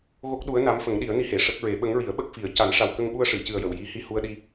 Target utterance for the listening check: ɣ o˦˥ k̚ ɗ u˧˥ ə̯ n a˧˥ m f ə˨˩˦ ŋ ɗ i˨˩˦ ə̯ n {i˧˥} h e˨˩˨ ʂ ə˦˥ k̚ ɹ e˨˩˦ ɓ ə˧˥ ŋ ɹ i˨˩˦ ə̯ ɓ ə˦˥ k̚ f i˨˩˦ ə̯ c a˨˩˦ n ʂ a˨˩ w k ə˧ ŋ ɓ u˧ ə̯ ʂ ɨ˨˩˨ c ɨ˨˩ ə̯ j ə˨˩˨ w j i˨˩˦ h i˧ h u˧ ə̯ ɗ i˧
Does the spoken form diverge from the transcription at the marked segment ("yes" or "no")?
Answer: no